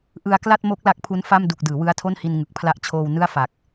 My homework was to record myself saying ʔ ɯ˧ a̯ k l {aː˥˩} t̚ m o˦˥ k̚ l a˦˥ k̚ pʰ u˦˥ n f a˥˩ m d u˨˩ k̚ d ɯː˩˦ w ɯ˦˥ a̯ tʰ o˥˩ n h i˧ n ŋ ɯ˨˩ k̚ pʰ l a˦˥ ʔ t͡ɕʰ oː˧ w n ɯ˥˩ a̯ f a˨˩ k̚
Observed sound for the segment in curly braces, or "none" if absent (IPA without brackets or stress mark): a˥˩